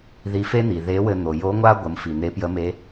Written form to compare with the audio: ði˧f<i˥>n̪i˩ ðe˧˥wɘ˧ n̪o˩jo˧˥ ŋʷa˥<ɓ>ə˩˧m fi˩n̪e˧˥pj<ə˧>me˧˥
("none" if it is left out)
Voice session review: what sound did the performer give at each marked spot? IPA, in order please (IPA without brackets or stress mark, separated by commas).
e˥, ɡʷ, ə˧˥